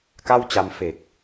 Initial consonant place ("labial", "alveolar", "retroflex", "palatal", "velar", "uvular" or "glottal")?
velar